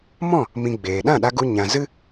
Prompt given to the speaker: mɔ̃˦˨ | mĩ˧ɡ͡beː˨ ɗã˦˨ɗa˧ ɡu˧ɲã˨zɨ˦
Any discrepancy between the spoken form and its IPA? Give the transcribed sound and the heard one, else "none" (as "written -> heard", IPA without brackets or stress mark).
none